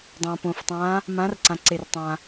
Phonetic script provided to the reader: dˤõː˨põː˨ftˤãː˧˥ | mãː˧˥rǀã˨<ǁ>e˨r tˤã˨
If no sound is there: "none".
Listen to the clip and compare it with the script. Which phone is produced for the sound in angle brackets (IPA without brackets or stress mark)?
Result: ǀ